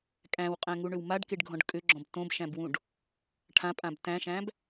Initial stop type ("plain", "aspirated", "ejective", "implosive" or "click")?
ejective